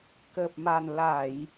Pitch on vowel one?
low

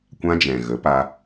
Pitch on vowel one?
high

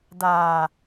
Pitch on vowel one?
low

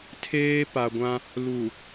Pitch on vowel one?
high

